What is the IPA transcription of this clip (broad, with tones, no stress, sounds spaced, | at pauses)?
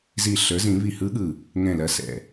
z i˧˩ ɬ ə˞˩˥ z ĩ˨˩˦ β i˧˩ h ɯ˧˥ ɠ ɯ˧˩ | ŋ ɛ̃˧˩ l ɐ˩˥ s ɛ̰˩